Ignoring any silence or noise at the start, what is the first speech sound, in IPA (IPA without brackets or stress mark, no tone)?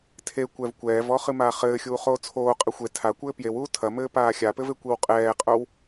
tʰ